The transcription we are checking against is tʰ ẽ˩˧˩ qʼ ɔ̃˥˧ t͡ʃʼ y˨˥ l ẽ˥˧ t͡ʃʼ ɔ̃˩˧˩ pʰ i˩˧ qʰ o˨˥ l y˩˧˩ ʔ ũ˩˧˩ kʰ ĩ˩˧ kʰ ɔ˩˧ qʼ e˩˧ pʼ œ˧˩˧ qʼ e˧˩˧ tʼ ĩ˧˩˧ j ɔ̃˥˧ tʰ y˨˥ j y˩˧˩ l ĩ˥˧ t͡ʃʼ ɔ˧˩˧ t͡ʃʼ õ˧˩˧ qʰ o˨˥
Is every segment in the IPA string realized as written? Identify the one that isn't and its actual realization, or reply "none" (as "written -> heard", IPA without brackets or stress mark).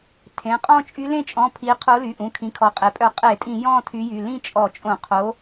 none